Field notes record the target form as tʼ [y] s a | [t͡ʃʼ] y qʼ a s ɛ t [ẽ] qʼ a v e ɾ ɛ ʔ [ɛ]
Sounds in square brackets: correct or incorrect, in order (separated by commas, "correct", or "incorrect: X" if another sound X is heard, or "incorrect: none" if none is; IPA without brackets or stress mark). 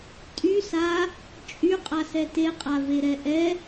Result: correct, correct, incorrect: e, correct